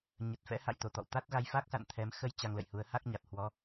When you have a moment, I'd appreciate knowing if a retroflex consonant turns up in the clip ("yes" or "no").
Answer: no